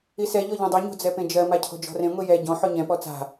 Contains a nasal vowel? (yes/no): yes